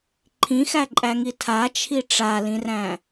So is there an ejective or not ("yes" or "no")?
yes